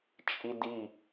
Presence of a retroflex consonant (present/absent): absent